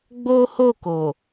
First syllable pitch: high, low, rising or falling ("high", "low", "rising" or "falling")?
high